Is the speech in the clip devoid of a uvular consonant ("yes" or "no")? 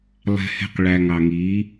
no